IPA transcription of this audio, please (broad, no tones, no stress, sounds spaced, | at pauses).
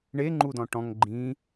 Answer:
ɳ e ŋ͡ǃ u d ɔ̃ ʈ ɔ̃ ŋ ɡ͡ǃ ĩ